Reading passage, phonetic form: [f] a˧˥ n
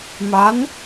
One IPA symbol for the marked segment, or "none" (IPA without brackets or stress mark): m